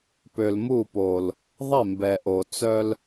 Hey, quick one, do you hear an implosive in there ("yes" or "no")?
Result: no